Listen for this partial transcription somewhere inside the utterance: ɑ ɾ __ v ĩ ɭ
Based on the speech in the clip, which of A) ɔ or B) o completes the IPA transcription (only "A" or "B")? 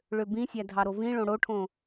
B